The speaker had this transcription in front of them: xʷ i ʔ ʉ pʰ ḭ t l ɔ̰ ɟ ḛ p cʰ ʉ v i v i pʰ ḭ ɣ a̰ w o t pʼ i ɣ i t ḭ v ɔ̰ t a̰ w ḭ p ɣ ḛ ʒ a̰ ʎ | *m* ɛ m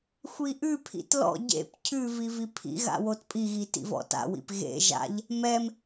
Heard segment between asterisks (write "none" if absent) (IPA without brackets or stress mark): m